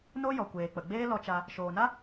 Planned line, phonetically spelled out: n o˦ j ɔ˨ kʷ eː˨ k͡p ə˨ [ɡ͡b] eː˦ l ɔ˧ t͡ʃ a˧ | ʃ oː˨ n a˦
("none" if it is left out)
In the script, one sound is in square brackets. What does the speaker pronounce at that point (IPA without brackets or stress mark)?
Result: ɡ͡b